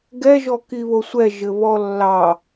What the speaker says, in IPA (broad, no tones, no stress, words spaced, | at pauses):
ɡɛ ʒɔkiβosʷɛ ʒɘβɔlːɑ